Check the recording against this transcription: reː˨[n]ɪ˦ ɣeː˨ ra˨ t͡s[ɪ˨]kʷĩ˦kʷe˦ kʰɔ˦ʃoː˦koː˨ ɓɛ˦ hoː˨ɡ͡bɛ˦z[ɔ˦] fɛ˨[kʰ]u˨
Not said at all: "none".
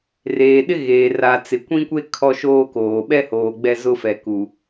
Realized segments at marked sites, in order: ɗ, ɪ˨, ʊ˦, k

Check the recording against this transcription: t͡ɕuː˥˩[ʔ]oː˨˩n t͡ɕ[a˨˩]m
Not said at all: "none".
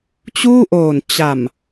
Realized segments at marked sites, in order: ʔ, a˨˩

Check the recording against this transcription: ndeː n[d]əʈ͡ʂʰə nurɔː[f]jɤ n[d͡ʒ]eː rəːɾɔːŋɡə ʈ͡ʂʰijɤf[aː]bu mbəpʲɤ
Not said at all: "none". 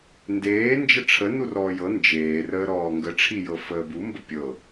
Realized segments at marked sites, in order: d͡ʒ, none, d͡ʒ, əː

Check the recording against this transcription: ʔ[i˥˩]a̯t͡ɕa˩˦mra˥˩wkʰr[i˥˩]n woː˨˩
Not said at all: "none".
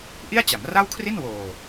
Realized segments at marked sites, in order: i˥˩, i˥˩

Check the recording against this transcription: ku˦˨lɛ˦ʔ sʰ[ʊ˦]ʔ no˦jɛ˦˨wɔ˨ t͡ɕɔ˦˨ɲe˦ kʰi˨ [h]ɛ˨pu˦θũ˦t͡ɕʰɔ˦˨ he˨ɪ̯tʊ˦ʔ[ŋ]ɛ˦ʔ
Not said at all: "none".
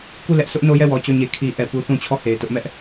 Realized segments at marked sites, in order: ʊ˦, ʔ, m

